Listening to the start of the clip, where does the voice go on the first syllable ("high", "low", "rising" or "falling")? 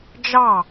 falling